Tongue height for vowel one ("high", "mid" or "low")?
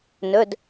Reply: mid